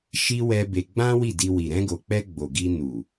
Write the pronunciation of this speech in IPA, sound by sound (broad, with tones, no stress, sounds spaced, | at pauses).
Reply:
ʃ i˦ w ɛ˦ b e˧ ɡ͡b ã˦ w i˦˨ d i˧ w i˨ ɾ ɛ̃˧ ɡ o˨ k͡p ɛ˧ ɡ͡b o˨ ɡ i˧ n u˨